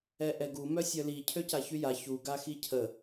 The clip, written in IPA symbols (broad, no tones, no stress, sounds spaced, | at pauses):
ɛ ʔ ɛ ɡ u m œ sʲ œ l i cʰ ø c a ç y j a ç u ɡ a x i cʰ ə